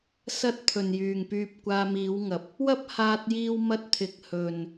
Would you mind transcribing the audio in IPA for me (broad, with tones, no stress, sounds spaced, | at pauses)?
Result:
s ɐ˥ t̚ t̪ʰ ɵ˨ n j yː˨ ŋ p yː˧ p̚ kʷ aː˧ m iː˨˧ w ŋ ɐ˨ p̚ | w ɐ˥ p̚ h aː˧ t̚ j iː˥ w m ɐ˥ t̚ t̪ʰ ɪ˨ k̚ h ɵ˨ n